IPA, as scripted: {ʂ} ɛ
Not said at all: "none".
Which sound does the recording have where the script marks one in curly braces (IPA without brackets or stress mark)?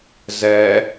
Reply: z